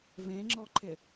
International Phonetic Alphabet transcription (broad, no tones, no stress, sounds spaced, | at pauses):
v ẽ ŋ͡ǁ ɔ ǃʰ ɪ